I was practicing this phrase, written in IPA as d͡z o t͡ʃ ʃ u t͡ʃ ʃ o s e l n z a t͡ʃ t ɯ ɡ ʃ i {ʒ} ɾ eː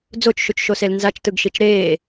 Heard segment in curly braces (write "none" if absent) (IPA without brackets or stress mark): t͡ʃ